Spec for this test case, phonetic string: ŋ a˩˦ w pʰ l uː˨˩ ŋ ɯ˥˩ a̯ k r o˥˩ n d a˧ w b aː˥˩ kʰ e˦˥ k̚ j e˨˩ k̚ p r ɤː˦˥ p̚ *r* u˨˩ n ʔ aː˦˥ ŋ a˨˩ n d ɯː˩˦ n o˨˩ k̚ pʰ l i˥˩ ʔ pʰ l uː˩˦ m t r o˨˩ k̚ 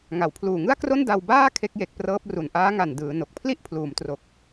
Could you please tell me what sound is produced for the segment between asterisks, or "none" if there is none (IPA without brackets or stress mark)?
r